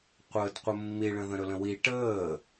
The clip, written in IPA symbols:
qʷ əː d qʷ ə mː i ɭ ə̃ ð ə̃ ɾ ɵ l ə̃ w i ʈ əː

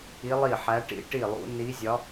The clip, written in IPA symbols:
i˧˥ lˠ i˥˩ ħ æ˧˥ ʈ ḭ˧˥ ʈ i˥˩ lˠ ṵ˧˥ n i˧˥ zʲ ɒ˧˥

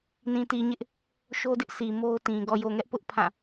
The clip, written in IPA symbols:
n ĩ˨ t i˨ ɲ ɪ˦ ʔ | ʃ o˦ d ɪ˦ ʔ s i˨ m o˦ ʊ̯ t ĩ˨ ɡ ɔ˨ j o˨ ŋ ɛ˦ ʔ p ʊ˦ ʔ pʰ ã˦˨

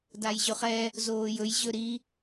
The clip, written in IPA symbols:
d a j ʑ ɵ χ ɛ | z oː j ɵ j ʑ ɵ ɾ i

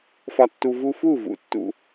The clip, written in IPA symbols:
f ɒ˧ tː u˧ v u˧ f u˦˨ v ṵ˧ tː ṵ˧

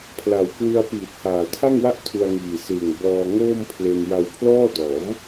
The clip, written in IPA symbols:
pʰ l a˨˩ w k w ɯ˧ a̯ p iː˨˩ t̚ h aː˨˩ tʰ a˥˩ ŋ w a˥˩ ʔ tʰ u˧ a̯ ŋ iː˨˩ s ɯː˨˩ ŋ b ɔː˧ ŋ oː˥˩ m pʰ l e˧ n j a˧ w pʰ l ɔː˥˩ d ɔː˩˦ m

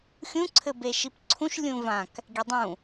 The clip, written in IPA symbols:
xʲ ũ ǀʰ ɘ b e ʃ i p ǀʰ ũ ʃ lʲ ũ v ã k | ɡʲ e dˤ ũ

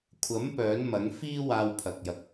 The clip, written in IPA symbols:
kʷʰ ɐ˨˥ m p œː˨˥ n m ɐ˨˥ ŋ f iː˥ w aː˧ w pʰ ɐ˨ k̚ j ɐ˨ k̚

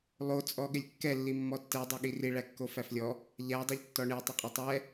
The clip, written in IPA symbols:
lˠ o t͡sʼ ɔ ɠ ɪ lʲ kː ɛ lː i mː ɔ tː ɛ dˤ o ɠ i r i ɭ æ kː o f æ f lʲ ɔ | ʎ æ dˤ e ʎ tː ɔ ɳ e tˤ o qʼ o tˤ ɛ

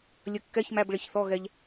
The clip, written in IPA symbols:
lʲ ə˧ kː ɛ˧˥˧ ç m æ˧˥˧ b ɭ ɪ˨˥ ç θ ɔ˧˥˧ ɣ ɛ˧ ʎ

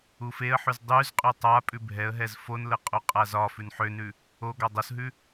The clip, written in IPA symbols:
u f e ə̯ ħ ʉ z dˤ ʉ z qʼ ʉ tˤ a pʼ ʉ bʱ ɛ ə̯ ɦ ɛ z f o n l ə qʼ o qʼ a z ɒ f ʉ n ħ ø n ʉ | o ɡ ɒ dˤ o s ɦ ʉ

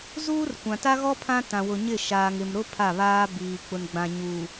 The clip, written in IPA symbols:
z uː˦ r kʷ ã˨ t a˦ ɣ ɔ˦ pʰ ã˦ t ã˨ w ʊ˨ ɲ ɪ˦˨ ʃ aː˨ ŋ ɪ˨ m ɾ ʊ˦ pʰ a˦˨ β aː˦ b iː˨ k͡p ʊ˨ n ɡ͡b ã˨ ɲ uː˨

